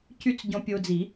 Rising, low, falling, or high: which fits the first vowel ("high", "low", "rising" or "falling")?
high